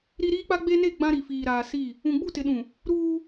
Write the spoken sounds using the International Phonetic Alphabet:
ɾ i˦ ɾ iː˦ k͡p a˦ ɡ͡b e˦ n e˦˨ ɡ͡b ã˦ ɾ i˨ f iː˨ ɾ aː˨ s i˦˨ | ũ˨ ɡ͡b u˦˨ t ɪ˨ ɗ ũ˨ | ɾ uː˦

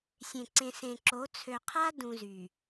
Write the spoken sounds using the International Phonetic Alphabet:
sʲ ẽ˨ ǀ ẽ˨ s ẽ˨ ǁ o˨˦ t͡sʰ ø˨ qʰ a˦ d ũ˨ z y˨

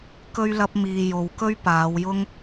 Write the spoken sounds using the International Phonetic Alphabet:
k ɵ˥ ɥ l ɐ˥ p̚ m iː˧ j o˨˧ w k ɵ˥ ɥ p aː˨˧ w j ʊ˥ ŋ

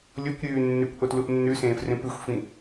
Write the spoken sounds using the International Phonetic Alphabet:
lʲ o kʷ ɾʲ ʉː nː ʉ kʷ ʔ o t l u ʔ nː ʉ s ẽː f r ẽ p ʉ xʷ f ĩ

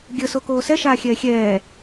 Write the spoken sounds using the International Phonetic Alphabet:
ɡʲ ə s o k oː s ɛ ʃ aː xʲ ɛː xʲ ɛː

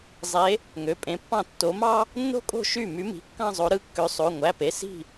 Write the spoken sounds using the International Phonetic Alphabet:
zˤ e˨˦ | ŋ ø˩˧˩ pʼ ẽ˨˦ pː ɑ̃˥˩ tː o˨˦ m ɑ˥ | nː o̤˥ kʼ o̤˥˩ ʃ y˥˩ m y˨˦ m i̤˩˧˩ kː ɑ̃˥˧ zˤ o˨˦ ɾ ɯ˩˧˩ kː ø˨˦ sˤ o˩˧˩ ŋʷ æ˩˧˩ p e˩˧˩ s i̤˥˩

